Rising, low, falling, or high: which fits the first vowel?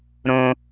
high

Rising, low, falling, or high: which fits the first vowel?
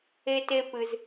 high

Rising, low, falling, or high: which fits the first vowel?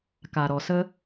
low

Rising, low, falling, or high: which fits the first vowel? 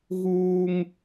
high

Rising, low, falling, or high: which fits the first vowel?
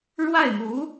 falling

